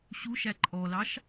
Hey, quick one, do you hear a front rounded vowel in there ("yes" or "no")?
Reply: no